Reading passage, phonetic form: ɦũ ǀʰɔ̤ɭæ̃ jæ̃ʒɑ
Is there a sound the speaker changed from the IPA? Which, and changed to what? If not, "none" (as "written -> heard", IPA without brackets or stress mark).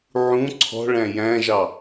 ɦ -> ʕ